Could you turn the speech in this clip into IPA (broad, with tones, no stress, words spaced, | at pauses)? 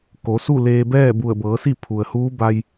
ko˩˧su˥˨leː˧bɛː˥˨ bu˧˩ə̯bɤː˩˧si˥˨ pʰu˩ə̯huː˧˥ba˧j